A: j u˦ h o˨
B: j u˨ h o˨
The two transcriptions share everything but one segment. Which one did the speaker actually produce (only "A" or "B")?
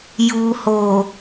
B